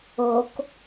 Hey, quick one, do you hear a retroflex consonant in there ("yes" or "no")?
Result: no